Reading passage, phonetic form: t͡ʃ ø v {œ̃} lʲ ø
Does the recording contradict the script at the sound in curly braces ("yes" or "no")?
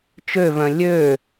no